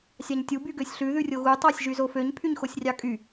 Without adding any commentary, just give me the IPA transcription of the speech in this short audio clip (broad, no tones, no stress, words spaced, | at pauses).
sʲɑɲtʲu byɡøsʲɬʉ ðʉrʲoɣu tˤɑsʲʒyzoføɲ pʰyɲxosʲrʲɑkʼy